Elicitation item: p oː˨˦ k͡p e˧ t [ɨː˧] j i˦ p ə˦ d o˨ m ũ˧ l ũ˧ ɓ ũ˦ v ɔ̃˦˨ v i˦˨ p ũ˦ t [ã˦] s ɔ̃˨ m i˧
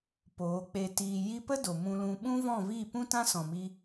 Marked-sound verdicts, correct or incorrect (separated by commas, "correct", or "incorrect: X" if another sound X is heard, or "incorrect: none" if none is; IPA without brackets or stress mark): incorrect: iː˧, correct